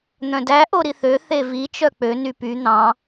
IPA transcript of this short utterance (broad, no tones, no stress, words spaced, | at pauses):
n̪œ̃dæ ʔoɾiθø θevi t͡ʃœk͡pø nypy n̪ɑ̃